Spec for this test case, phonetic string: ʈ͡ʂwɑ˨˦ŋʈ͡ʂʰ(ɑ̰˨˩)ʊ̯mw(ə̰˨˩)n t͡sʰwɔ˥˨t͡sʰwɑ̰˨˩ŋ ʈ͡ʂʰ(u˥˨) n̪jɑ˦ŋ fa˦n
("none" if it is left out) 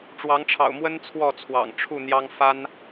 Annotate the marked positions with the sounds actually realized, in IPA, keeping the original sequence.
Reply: ɑ̰˨˩, ə˦, u˥˨

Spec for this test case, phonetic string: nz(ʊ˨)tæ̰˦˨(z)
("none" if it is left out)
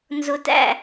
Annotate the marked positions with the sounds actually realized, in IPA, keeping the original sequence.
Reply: ʊ˨, none

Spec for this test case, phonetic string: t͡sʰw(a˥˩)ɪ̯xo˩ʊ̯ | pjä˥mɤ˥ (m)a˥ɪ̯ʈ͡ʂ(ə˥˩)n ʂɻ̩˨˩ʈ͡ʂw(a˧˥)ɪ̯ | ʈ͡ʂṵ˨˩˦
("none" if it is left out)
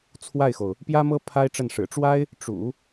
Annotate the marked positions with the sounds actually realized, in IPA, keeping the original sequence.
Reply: a˥˩, pʰ, ə˥˩, a˥

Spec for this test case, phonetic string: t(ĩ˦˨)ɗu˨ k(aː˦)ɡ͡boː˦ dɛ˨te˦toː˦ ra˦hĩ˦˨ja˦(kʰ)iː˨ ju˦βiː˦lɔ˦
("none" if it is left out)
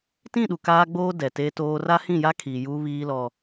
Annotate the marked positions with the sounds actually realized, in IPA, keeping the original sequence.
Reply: ĩ˦˨, aː˦, kʰ

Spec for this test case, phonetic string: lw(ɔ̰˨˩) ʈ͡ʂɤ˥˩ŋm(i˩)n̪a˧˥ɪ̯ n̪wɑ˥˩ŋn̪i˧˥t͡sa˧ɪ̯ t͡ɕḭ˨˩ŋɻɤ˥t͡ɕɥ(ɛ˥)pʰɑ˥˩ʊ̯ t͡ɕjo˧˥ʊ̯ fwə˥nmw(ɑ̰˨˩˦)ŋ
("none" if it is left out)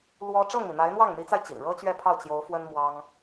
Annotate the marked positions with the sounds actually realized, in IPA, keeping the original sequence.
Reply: ɔ˥, i˩, ɛ˥˧, ɑ˥

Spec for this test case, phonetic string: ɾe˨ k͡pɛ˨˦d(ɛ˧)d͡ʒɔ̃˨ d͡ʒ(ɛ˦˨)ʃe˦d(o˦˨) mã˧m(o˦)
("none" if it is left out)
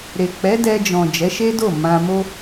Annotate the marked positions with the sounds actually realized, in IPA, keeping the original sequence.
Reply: ɛ˧, ɛ˨˦, o˦˨, o˦

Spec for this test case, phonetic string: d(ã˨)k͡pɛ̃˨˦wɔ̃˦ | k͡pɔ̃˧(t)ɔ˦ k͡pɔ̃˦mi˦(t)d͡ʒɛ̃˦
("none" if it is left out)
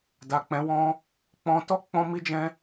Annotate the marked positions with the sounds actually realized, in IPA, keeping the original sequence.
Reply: a˨, t, none

